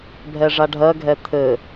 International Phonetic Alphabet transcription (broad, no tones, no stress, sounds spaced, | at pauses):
bʱ ɛ ʐ a ɖʱ ɜ ɡʱ ɛ t̪ʰ ɘ